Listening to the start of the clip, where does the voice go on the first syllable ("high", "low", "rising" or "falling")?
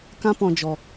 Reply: high